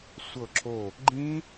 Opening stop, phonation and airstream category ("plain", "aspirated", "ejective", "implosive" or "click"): click